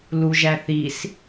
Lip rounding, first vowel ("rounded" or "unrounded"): rounded